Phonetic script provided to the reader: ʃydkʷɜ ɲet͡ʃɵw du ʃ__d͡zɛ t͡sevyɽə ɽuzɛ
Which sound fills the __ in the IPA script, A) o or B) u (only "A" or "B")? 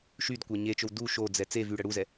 A